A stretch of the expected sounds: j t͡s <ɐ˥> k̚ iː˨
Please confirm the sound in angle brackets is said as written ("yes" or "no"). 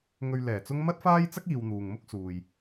yes